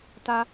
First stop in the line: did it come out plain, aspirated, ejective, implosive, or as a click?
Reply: plain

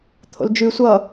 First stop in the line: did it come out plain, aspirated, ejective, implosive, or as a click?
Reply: aspirated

